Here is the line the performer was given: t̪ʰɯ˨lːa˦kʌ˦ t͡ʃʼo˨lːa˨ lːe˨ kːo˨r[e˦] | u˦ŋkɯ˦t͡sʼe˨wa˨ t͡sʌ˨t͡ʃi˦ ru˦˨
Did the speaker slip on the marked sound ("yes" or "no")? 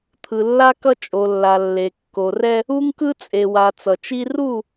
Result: yes